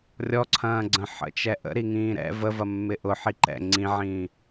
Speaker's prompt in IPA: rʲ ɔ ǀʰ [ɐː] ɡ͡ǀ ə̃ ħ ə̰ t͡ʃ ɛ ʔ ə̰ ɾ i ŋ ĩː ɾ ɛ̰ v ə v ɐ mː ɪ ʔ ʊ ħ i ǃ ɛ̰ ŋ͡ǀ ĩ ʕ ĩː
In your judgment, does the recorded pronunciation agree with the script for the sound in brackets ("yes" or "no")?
no